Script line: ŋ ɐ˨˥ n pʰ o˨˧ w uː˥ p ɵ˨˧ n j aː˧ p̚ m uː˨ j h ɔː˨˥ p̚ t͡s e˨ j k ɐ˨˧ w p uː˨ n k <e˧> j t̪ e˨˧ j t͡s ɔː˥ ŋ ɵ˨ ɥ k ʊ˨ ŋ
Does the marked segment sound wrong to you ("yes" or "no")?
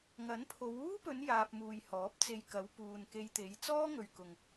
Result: no